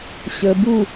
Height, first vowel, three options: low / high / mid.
mid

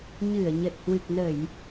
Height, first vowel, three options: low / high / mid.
high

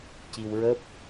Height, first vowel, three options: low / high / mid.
high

